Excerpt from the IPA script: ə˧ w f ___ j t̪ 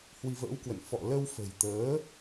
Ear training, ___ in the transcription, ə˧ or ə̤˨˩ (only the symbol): ə̤˨˩